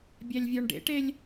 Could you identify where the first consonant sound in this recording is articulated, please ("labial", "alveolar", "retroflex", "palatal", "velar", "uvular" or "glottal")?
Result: labial